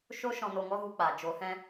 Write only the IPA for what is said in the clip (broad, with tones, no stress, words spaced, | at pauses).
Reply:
ʃo˦ ʃɔ̃˧no˧ŋɔ˦ɣu˧ k͡paː˨ d͡ʒo˨˦hɛ̃˦